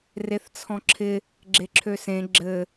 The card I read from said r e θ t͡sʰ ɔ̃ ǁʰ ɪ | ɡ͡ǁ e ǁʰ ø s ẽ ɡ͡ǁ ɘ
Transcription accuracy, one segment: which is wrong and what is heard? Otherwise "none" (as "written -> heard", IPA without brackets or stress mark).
none